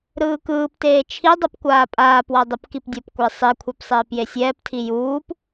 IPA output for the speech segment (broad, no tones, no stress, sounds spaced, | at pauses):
ɾ ɯː k ɯː p t eː t͡ʃʰ i dˤ ʌ p kʷ aː pʼ aː p w a dˤ u p k i p dʲ ʌ p kʷ ɛ sˤ i kʷʰ ɛ p sˤ eː p j e sʲ ɛː p tʰ i j uː p